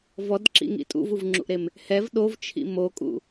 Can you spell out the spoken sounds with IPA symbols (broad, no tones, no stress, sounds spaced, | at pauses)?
v ɔ d ǁ ḭ ŋ ḭ tʼ ṵ v u v ŋ͡ǁ ṵ ʔ ɾ e m | h ɛ v ɗ o v t͡ʃʰ ḭ m o kʼ ṵ